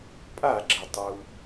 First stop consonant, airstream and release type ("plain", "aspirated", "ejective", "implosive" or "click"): ejective